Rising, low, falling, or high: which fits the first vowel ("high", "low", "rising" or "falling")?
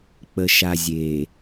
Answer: low